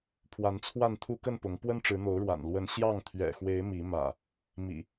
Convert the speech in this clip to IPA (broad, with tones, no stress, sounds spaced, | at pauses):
pʰ w a˨˦ n t͡sʰ w a˥˨ n t̪ʰ u˦ k ə˥˨ n p ʊ˨˦ ŋ p w ə˦ n ʈ͡ʂ ɻ̩˨˦ n̪ o˨˦ ʊ̯ ɻ w a̰˨˩ n l w ə˨˦ n ɕ j ɑ˥˨ ŋ t̪ʰ ɥ ɛ̰˨˩ x w e˨˦ ɪ̯ m i˨˦ m ä̰˨˩ | m ḭ˨˩